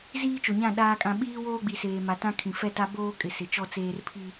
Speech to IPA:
z iː˦ t͡ʃ o˨ ɲ ã˦˨ ɗ aː˨ kʼ ã˨ ɓ iː˦ w oː˦ ɡ͡b i˨ s eː˨ m a˨ t ã˦ kʰ ĩ˨ f ɛ˦ t a˦ b oː˦ kʼ ɪ˨ s ɪ˨ t͡ʃ ɔ˦ t͡s eː˦ r pʰ i˦

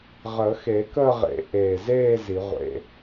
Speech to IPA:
ʁ əː˨˩˦ x e˨˩˦ k əː˥˧ ʁ ḛ˨˩˦ ʔ eː˨˩ z eː˥˧ z i˨˩˦ ʁʷ ḛ˧˥˧

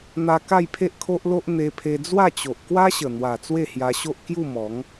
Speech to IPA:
n̪ a˧ k a˥˧ j pʰ e˦ ʔ kʰ o˦ ʔ l o˦ ʔ n̪ e˧ pʰ e˧ d͡z w a˥˧ t͡ɕ o˨ ʔ k w a˦ ɕ ə˨˩ n̪ w a˨˩ t͡s w e˥˧ h j a˧ ɕ o˦ ʔ k j u˥˧ m ɔ˨˦ ŋ

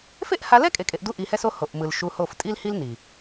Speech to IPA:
f e˦ ʔ h a˧ l ɛ˦ kʼ e˧ kʼ e˧ ʔ d u˦ ʔ i˧ h ɛ˦ s o˦ h o˨ ʔ m ɯ˨ l ʃ u˧ h o˦˨ f tʼ i˦ l h i˦ l n i˨

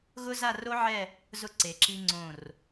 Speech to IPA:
ɣ ʊ˥ z a˥˧ r o˥ ʕ ɛ˥˧ | z ʊ˧ ǀ e˩˧ ǁ i˧ ŋ͡ǀ õ˧˩ r

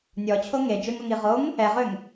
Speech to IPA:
nʲ ɔ t͡ɕʰ o ŋ e d͡ʒ ø ŋ o ŋ i ʁ o ŋ | ɛ ʁ ø ŋ

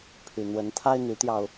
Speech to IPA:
pʰ y˨˩ n̪ w ə˨˦ n t̪ʰ a˦ ɪ̯ n̪ y˨˦ t̪ j ɑ˧ ʊ̯

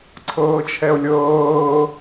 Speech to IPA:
ǀʰ ɤː t͡ʃʰ ɛ o̯ lʲ ɤː

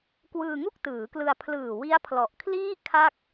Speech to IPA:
k w ɯː˧ ŋ u˥˩ k̚ t ɯː˩˦ k l ɯ˧ a̯ pʰ l ɯː˨˩ w i˦˥ a̯ pʰ l ɔ˨˩ ʔ kʰ l iː˥˩ kʰ a˥˩ k̚

